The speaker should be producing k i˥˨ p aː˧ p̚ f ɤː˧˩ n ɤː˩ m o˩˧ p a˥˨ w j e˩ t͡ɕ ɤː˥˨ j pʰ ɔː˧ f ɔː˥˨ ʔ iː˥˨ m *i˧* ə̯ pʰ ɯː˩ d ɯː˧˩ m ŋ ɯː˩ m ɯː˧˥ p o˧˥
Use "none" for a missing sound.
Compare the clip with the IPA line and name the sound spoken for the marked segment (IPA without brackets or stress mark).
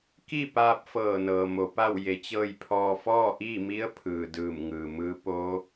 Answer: i˧˥